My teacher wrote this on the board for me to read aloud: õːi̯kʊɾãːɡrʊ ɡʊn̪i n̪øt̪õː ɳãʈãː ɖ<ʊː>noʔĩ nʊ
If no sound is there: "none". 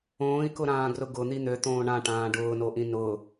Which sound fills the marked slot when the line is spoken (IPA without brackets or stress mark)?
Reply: ʊː